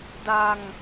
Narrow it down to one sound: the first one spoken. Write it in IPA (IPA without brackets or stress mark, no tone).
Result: d